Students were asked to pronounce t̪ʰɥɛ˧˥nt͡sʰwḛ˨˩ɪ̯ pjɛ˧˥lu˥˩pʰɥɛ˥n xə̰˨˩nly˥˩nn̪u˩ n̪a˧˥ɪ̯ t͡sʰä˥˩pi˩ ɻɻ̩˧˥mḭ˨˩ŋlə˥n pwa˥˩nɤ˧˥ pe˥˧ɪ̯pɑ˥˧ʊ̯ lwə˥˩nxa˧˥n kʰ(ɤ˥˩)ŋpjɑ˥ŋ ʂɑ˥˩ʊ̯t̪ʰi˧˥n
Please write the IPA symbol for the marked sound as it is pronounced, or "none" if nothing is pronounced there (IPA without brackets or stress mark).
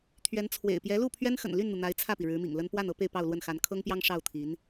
ɤ˥